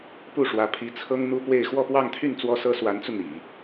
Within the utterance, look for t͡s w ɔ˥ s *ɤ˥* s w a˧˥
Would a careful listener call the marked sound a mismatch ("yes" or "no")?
no